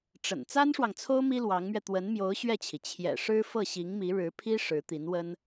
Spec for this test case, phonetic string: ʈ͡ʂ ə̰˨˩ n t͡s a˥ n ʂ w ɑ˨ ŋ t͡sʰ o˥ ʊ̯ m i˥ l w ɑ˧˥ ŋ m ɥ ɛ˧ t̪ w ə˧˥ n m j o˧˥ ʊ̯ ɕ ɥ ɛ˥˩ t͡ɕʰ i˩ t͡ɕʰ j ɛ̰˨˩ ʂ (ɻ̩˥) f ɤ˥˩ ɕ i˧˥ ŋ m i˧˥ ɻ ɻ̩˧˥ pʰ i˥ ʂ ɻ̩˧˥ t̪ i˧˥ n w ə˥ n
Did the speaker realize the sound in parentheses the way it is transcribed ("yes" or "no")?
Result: yes